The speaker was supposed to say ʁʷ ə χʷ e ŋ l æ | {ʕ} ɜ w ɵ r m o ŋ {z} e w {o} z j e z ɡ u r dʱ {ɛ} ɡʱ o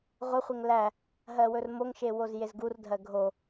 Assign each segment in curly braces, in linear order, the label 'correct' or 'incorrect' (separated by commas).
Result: incorrect, incorrect, correct, incorrect